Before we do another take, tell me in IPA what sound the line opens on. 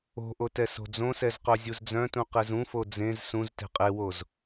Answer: o̤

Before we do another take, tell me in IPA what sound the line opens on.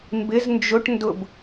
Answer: m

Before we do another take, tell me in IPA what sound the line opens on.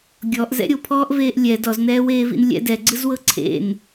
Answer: ɡʲ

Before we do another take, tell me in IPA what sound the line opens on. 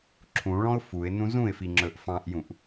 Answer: ǁʰ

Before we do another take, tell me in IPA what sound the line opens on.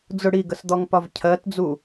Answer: d͡z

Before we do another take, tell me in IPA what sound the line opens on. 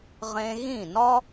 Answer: ʁ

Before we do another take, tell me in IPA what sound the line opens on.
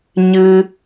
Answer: ɲ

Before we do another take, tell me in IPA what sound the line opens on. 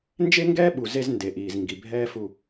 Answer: n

